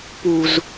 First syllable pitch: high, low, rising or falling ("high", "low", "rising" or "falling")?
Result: low